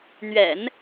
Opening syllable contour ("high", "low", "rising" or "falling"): low